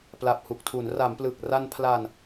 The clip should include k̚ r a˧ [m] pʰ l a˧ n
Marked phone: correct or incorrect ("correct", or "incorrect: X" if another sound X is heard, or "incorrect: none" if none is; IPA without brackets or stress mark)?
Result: incorrect: n